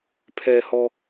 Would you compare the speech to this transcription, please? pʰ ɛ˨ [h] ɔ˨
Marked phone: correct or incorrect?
correct